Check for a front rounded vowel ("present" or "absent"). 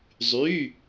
present